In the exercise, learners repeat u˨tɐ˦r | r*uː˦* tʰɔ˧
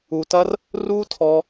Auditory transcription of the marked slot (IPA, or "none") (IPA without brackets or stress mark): uː˦